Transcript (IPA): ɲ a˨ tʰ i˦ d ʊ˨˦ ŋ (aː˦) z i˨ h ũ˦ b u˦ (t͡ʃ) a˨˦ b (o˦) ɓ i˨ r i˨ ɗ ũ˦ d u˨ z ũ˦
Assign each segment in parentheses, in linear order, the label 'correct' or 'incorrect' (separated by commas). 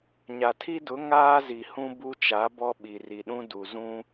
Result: correct, correct, incorrect